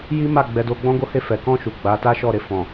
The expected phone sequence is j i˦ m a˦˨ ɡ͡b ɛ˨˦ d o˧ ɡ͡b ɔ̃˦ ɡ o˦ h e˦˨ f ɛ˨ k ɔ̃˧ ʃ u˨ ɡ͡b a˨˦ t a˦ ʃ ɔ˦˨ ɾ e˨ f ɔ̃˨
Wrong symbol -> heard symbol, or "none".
none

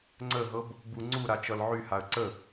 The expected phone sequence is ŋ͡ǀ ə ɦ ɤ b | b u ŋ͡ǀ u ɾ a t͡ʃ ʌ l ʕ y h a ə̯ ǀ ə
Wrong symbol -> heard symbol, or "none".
none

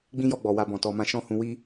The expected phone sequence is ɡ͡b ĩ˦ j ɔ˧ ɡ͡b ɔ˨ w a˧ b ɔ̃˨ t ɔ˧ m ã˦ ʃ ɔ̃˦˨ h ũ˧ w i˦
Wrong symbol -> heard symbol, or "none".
none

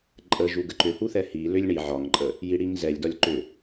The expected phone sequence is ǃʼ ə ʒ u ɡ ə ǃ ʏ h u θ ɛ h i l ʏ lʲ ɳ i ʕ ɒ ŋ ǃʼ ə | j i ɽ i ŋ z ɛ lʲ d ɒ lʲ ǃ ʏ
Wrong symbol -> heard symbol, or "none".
none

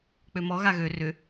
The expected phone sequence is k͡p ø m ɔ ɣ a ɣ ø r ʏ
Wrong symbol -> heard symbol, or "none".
none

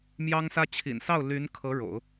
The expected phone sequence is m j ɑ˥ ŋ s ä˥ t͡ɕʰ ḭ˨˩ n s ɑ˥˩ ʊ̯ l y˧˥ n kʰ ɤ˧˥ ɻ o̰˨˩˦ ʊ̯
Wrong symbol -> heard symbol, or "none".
none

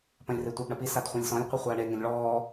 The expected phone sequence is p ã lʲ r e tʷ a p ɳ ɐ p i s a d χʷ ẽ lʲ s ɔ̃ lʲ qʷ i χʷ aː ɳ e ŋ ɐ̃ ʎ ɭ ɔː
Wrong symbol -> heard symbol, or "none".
ã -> ɐ̃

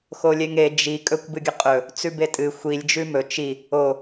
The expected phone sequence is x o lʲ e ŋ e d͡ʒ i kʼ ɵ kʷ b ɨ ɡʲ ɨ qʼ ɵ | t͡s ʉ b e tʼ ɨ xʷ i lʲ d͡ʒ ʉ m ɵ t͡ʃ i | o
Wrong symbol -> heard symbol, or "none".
none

